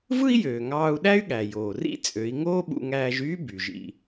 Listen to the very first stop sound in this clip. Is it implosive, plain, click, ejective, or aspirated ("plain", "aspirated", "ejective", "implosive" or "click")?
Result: implosive